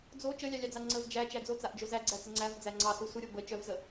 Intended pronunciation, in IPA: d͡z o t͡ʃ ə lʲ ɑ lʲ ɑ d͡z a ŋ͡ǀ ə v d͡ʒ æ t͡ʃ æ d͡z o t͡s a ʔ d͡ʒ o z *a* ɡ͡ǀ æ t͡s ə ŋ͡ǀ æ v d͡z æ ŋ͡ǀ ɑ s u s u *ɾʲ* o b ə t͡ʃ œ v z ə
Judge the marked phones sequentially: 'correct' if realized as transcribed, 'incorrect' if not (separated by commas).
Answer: incorrect, correct